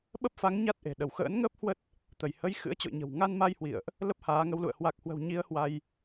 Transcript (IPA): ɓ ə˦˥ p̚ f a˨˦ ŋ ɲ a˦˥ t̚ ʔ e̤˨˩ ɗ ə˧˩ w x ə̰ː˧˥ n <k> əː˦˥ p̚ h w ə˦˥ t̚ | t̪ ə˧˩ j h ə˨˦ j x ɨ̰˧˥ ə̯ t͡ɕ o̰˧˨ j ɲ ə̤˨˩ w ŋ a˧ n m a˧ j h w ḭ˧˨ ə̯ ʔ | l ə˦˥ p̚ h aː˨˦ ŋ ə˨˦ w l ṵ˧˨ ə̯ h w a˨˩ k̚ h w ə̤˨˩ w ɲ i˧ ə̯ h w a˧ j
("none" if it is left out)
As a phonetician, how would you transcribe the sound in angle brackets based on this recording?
ŋ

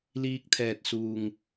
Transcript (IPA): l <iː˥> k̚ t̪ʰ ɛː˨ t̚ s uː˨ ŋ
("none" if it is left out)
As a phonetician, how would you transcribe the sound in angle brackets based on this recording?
iː˧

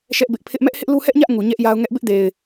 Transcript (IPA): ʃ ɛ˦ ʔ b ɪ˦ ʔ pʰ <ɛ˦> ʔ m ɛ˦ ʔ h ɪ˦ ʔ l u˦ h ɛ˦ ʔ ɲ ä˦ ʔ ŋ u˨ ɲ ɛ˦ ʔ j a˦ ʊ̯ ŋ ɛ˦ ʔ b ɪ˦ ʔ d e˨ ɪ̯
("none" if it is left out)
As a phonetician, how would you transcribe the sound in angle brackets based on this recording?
ɪ˦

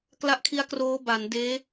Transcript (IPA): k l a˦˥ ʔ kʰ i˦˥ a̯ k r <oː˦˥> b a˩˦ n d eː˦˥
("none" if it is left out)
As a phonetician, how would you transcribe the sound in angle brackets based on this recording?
oː˦˥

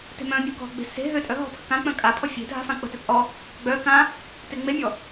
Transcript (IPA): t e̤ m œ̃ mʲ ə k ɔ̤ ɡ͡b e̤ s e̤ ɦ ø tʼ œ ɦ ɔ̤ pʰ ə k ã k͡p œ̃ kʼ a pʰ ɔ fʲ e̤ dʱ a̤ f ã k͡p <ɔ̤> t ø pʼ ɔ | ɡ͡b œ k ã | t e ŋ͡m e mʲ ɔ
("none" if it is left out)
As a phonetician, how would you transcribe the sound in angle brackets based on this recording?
ə̤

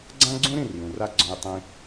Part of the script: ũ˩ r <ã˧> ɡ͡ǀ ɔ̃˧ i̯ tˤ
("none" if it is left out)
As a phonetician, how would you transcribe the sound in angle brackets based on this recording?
a˧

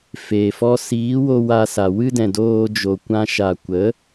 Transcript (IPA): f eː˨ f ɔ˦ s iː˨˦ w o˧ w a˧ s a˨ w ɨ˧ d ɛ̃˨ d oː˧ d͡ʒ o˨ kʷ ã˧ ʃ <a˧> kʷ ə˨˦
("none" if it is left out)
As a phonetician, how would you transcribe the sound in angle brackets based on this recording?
a˨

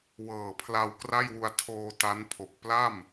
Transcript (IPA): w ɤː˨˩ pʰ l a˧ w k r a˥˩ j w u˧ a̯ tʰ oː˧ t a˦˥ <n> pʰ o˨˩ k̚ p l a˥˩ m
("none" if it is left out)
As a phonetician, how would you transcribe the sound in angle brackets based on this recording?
n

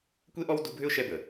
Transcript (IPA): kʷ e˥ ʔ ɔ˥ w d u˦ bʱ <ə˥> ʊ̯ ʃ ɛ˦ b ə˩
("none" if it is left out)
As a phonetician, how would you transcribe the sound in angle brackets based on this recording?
ʏ˥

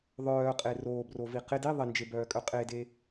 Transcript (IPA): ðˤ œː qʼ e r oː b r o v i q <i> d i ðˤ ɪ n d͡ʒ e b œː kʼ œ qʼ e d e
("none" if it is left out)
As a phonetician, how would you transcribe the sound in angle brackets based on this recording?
ɪ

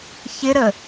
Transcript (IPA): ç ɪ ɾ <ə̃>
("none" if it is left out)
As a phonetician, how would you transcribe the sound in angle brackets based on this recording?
ə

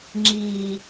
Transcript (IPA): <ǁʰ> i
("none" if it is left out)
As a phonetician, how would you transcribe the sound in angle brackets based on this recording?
ŋ͡ǁ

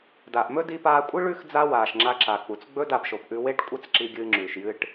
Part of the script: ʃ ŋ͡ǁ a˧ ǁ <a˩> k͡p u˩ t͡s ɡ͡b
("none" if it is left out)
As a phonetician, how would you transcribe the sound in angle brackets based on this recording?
a˩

